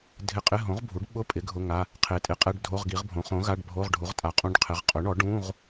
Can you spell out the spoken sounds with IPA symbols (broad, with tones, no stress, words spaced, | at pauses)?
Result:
dʱɪ˧˥˧qʼɪ˧˥˧ ɦõ˩˥ʁbʱu˩˥ɖɓʊ˧˥˧pʼɪ˩˥ ɡʱʊ˧˥˧ŋa˧˥˧ | qʰe˩˥tʼe˩˥qʼɛ˧˥˧ɖ dʱo˧˥˧ʁɡi˩˥ʁbʱõ˩˥ χõ˩˥ ɣa˧˥˧ɖbʱo˧˥˧ʁɖʱu˩˥ʁ tʼa˩˥qʼũ˧˥˧ɖqʰɪ˩˥ʁ qʼʊ˩˥ɳɔ˩˥ ɖũ˧˥˧ʁ